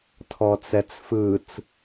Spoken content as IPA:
tʰɔt͡sɛt͡sfɯt͡s

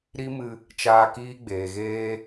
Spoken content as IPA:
ɾi˦mɨ˧ | t͡ʃaː˧kiː˦ɡ͡beː˨ɣeː˦

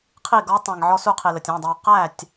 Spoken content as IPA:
qʰi˥˩ɡɔ˦˥tˤĩ˩ŋ ʕɔ˦˥su˦˥qʰi˩ lə˩tʲĩ˩˧˩dˤɑ˧ʊ̯ qæ˥˩tʲ

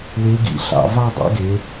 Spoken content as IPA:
we˨˥ɡḭ˧˩ ɬɑ̰˧˩ vɑ˥˧ dˤɛ̰˨˥ɡe˩˧

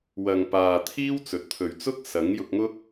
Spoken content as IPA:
wɐ˨ŋpaː˨t̪ʰiː˥w t͡sɵ˨t̚t̪ʰɵ˨ɥt͡sʊ˥k̚ sɐ˨˥ŋjʊ˧k̚ŋʊ˥k̚

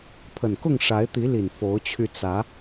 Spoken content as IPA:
pʰə˨˩nkʊ˥˨ŋ ʂa˨˦ɪ̯t̪i˨˦li˨˩n fo˨˦ʊ̯t͡ɕʰy˧ t͡sä˨˦

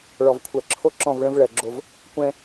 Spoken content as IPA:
ɭɔ˨vkʷʰɜ˨ǁʰo˦ ǁɔ̃˦˨vɭə̃˦v ɭɜ˨ ɡ͡ǁo˦v | kʷɛ̃˦

